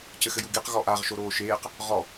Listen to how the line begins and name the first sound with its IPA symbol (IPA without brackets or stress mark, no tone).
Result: c